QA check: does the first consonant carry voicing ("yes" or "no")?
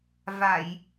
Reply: yes